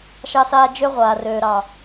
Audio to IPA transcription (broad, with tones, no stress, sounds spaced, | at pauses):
ʃ ɑ˦ s aː˦ d͡ʒ ø˦ ʁʷ aː˨ r øː˨ ɾ ɑ˨